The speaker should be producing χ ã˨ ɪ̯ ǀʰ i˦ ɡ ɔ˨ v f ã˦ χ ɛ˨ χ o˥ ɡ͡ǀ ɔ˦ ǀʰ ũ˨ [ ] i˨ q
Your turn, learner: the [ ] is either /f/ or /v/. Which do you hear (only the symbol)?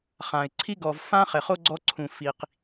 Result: f